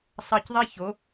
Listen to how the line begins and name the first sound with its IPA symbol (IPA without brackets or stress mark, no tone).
sˤ